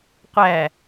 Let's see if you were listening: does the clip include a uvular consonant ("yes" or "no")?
yes